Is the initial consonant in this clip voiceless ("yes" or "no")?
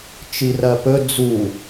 yes